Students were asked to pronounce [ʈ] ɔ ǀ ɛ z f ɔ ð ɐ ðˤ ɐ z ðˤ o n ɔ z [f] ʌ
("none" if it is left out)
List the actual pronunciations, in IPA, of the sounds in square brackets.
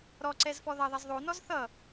ɾ, θ

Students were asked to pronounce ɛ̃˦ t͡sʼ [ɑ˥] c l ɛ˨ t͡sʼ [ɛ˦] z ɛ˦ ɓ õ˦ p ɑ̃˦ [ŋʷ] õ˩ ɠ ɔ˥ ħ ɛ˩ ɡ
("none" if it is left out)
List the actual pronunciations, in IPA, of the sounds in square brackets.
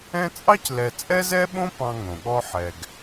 ɑ˥, ɛ˦, ŋ

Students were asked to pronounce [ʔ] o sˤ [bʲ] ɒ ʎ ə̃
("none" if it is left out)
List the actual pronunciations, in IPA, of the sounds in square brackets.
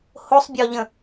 h, bʲ

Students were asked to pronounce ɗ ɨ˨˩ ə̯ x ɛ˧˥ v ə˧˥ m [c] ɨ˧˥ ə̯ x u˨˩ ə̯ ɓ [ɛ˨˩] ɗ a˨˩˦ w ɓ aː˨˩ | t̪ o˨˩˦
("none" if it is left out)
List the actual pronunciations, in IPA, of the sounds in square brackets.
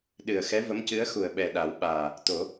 c, ɛ˨˩

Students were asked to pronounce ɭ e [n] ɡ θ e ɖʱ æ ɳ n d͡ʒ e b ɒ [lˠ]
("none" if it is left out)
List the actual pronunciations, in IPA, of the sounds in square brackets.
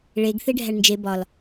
none, l

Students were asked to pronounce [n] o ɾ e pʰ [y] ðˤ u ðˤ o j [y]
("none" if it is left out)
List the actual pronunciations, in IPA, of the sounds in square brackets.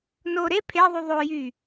n, e, y

